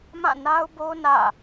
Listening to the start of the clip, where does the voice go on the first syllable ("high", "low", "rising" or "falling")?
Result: falling